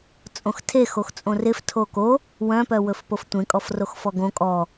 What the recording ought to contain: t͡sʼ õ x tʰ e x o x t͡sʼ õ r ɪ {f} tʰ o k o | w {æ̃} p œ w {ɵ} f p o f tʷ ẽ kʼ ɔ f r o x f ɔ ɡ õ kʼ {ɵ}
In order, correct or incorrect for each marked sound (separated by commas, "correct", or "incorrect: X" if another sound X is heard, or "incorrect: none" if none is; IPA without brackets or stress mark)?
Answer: correct, incorrect: œ̃, correct, incorrect: ɔ